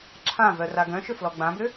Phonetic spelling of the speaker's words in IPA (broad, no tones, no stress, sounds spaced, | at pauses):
ǁʰ ã v œ r a ɡ œ̃ ʃ ʏ f l ɔ ɡ͡b ã b ʏ